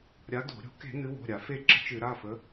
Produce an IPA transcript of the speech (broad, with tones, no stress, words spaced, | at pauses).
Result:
ɾʲa˨˦ d̪o̤˧˩˧ ɾʲo̤˧˩˧ke̤˧˩˧ n̪ɨ˨˦wo̤˩˧˩ɾʲa˧˩˧ fe˦˨ ǁə̤˦t͡ʃɨ˧˩˧ ɾa˩˧˩fə˨˦